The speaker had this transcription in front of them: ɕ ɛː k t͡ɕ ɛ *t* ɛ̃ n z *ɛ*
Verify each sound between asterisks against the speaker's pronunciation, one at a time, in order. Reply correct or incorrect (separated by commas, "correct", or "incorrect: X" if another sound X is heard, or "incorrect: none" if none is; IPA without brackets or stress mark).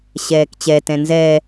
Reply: correct, correct